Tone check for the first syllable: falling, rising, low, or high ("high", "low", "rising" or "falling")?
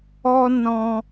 high